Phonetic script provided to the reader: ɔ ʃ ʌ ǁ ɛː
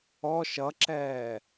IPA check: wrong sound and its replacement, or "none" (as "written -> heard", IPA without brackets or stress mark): none